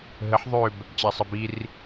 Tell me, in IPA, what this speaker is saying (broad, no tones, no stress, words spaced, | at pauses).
ɦəħ ðˤøb | t͡ɕasˤəbir